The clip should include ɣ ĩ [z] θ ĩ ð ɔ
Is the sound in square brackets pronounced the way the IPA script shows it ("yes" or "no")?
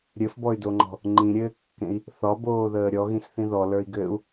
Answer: no